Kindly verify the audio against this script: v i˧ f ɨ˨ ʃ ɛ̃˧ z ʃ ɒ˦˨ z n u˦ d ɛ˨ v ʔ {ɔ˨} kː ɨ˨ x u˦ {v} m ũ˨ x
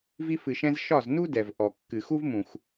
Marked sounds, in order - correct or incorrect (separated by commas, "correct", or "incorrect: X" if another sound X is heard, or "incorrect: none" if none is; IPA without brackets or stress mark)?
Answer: correct, correct